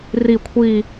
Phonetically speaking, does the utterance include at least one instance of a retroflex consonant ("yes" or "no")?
no